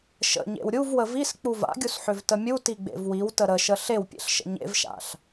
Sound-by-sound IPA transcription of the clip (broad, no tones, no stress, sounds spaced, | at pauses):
ʃ ə̰ ɲ ḛ w ɾʲ u v w ə v i s k͡p u v a̰ ɡʲ u s ħ ʏ v t ə mʲ u t i ɡ͡b ḛ v w i w t ə ɾ ə ʃ ə ɬ e w pʲ ḛ ɬ ʃ ə̰ ɲ ḛ v ʃ a̰ ɬ